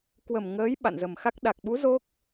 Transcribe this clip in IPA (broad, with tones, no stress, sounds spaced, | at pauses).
k w ə˨˩ m ŋ əː˨˦ j ɓ a̰˧˨ n z ə˨˩ m x a˦˥ k̚ ɗ a˨˩ k̚ ɓ u˨˦ z o˦˥ k̚